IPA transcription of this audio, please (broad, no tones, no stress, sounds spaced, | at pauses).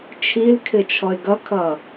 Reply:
t͡ʃʰ i l kʰ ɪ t͡ʃʰ ɔ ɪ̯ ɡ ʌ kʰ ʌː